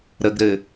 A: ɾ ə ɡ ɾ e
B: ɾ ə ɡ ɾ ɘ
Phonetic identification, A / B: B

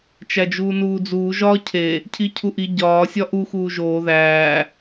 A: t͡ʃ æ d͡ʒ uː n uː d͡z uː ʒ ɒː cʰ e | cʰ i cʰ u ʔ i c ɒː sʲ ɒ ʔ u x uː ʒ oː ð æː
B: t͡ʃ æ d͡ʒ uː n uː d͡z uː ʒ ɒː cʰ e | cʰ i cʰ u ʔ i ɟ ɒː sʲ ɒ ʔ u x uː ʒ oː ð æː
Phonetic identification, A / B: B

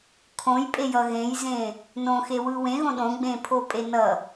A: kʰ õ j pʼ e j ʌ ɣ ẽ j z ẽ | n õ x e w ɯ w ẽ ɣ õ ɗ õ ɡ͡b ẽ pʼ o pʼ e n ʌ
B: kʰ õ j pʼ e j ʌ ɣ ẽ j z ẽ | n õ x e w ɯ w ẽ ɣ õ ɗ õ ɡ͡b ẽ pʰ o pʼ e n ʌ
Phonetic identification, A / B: B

